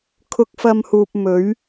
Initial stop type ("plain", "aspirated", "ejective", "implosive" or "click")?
aspirated